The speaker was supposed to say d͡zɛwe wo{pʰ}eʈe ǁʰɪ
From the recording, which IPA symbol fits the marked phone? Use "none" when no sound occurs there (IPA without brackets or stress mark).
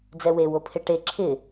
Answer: pʰ